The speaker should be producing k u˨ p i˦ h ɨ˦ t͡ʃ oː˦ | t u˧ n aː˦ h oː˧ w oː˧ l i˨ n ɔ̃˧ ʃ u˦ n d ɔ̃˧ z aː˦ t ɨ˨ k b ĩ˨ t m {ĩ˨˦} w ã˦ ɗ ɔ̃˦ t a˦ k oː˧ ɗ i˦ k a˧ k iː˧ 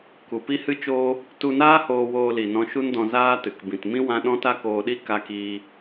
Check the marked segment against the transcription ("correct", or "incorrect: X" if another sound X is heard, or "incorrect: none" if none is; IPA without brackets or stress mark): incorrect: ĩ˦